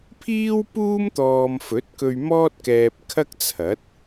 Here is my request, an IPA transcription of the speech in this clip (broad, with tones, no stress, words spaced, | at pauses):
pʰiː˥wpuː˥m t̪ɔː˧m fɵ˨˥t̚kɵ˧ɥ mɔː˥t̚kɛː˧p̚ kʰɐ˥k̚t͡sʰɐ˨˥t̚